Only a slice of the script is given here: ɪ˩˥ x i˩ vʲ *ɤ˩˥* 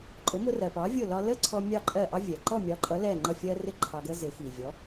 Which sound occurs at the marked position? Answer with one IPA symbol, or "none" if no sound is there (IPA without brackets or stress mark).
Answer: ɔ˩˥